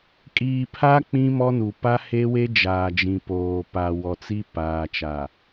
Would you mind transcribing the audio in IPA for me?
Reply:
kʼ iː˨ pʰ a˦ k͡p ĩ˦ m ɔ˦ n u˨ p a˦ h e˦ w e˦ d͡ʒ aː˨ d͡ʒ ĩ˨ p oː˨ p a˨ w ɔ˨ t͡s i˦ p aː˨ t͡ʃ a˨

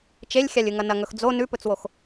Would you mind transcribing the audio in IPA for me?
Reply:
t͡ʃ e lʲ xʲ a lʲ ɨ ŋ ɐ n ɐ ŋ ɵ x d͡z o n ʉ p ɵ t͡s w o x

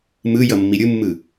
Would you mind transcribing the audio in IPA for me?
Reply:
m ɯ j ʌ mː i ɾʲ ɯ mː ɯ

